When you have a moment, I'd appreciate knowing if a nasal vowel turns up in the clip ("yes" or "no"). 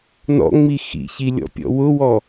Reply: no